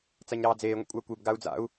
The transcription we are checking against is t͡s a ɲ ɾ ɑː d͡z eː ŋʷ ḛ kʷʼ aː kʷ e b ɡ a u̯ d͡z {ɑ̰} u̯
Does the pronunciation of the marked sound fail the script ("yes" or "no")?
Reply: yes